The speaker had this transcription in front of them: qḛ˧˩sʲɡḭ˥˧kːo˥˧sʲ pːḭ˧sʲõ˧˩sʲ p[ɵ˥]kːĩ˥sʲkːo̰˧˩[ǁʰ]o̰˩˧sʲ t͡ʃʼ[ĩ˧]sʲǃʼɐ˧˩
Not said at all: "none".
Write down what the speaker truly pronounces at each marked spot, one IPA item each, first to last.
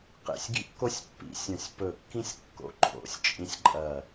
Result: ɵ˧˩, ǃʰ, ĩ˧

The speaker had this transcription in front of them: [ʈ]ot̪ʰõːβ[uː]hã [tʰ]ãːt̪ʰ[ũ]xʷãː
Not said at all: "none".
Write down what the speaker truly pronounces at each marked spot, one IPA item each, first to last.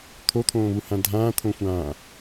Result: t̪ʰ, u, dʱ, õ

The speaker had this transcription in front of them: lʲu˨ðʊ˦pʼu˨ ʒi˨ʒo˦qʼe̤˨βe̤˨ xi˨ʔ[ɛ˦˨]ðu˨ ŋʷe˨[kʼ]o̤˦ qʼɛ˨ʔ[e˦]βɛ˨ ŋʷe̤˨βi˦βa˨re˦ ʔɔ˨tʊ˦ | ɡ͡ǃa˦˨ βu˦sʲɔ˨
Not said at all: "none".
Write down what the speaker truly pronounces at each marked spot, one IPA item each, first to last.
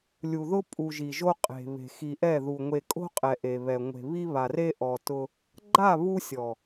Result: ɛ˦˨, kʼ, e˨

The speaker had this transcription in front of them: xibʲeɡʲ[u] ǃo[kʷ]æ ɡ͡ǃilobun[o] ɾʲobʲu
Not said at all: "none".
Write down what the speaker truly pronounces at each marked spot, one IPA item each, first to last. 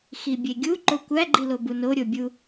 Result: u, kʷ, o

